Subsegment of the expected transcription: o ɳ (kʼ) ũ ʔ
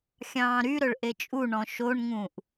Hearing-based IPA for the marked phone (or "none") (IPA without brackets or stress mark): ŋ